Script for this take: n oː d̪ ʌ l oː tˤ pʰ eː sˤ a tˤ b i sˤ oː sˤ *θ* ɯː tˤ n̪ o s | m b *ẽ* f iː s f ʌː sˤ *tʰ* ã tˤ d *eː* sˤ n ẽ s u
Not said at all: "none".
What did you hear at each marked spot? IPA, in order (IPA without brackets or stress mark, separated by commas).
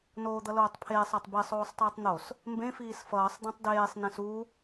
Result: tˤ, ẽ, d̪, eː